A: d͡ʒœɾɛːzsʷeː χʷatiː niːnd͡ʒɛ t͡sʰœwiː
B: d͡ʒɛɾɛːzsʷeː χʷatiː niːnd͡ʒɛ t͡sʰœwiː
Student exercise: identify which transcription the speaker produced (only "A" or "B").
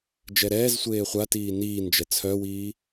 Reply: B